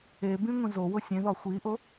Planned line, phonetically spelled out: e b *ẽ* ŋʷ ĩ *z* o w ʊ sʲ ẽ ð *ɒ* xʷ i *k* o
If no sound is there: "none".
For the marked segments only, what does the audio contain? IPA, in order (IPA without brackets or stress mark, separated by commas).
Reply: ĩ, z, ɒ, ʔ